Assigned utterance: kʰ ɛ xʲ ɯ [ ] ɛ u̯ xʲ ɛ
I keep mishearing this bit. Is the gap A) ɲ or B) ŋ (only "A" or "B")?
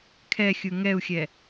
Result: B